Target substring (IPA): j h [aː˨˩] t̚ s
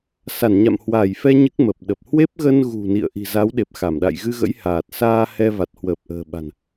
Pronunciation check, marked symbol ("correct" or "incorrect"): correct